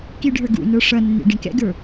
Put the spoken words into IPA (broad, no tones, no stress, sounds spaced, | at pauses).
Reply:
k i ɖʱ ə˞ ɡ ṵ n ə˞ ʂ ʌ nː ḭ ɖ ĩ k ɛ̰ ɡ ə˞